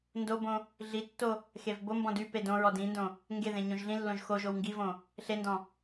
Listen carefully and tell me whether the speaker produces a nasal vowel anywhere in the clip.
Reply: yes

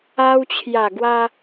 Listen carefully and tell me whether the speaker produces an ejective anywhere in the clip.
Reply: no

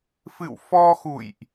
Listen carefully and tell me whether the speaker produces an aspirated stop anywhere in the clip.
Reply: no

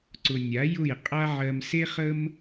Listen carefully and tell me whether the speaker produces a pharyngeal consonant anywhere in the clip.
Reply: yes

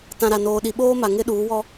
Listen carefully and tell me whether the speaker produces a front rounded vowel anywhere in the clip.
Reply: no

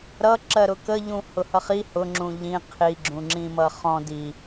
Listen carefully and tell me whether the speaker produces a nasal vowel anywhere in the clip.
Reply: yes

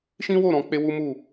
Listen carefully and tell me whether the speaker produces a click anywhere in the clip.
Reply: no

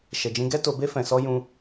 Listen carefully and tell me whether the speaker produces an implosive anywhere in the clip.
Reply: no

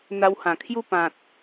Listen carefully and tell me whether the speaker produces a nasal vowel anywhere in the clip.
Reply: yes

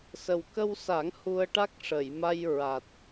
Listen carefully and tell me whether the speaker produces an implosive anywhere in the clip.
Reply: no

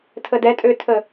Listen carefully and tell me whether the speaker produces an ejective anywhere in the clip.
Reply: yes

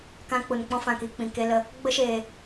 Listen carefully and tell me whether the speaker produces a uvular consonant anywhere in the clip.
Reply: no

